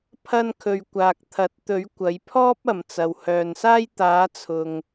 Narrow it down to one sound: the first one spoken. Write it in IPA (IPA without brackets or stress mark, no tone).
pʰ